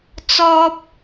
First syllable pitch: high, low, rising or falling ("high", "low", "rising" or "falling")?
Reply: high